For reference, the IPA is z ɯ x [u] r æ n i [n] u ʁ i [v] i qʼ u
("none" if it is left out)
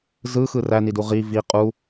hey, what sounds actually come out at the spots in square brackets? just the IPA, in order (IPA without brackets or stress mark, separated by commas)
ɯ, d, v